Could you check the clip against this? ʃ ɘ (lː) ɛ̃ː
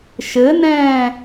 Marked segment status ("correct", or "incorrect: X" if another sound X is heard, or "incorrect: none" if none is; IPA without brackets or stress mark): incorrect: n